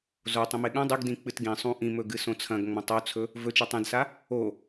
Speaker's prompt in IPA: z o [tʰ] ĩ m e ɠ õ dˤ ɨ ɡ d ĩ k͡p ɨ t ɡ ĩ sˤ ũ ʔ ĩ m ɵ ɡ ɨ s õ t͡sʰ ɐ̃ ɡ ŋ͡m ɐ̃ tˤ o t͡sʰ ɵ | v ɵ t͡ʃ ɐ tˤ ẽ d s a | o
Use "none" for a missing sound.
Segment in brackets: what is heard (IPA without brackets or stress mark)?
tˤ